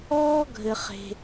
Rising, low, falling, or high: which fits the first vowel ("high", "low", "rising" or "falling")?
high